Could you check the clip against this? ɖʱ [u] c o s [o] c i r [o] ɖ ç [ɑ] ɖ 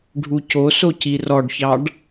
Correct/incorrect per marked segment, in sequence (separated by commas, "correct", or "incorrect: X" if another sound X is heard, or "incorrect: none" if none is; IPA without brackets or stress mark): correct, correct, incorrect: ɔ, correct